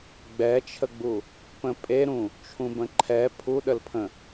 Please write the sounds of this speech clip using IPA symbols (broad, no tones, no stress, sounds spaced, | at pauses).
ɡ͡b ɛ t͡ʃʰ ə ɡ͡b u | p ə̃ pʼ e ɾ ũ | t͡ʃʰ ũ b ə̃ ǃʰ ɛ pʰ u ɗ ə l pʰ ə̃